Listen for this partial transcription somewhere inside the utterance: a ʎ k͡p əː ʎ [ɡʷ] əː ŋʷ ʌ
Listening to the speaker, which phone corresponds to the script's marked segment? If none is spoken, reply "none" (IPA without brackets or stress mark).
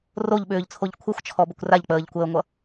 kʷ